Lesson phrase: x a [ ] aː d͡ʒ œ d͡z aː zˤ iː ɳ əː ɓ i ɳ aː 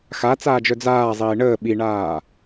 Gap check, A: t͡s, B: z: A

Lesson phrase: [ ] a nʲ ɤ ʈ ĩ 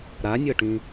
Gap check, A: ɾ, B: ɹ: A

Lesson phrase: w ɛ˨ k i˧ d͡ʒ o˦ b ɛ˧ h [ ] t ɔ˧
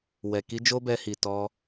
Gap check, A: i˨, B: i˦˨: A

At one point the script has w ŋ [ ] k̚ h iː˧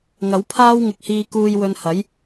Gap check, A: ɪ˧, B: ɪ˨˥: A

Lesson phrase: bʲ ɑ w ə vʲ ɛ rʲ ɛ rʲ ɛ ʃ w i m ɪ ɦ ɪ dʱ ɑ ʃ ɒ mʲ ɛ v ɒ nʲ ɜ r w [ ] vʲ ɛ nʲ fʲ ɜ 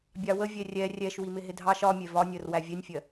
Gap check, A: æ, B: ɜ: A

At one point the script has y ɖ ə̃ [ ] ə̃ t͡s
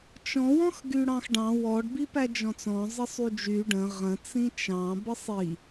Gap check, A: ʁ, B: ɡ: A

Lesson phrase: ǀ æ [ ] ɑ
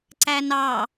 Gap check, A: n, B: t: A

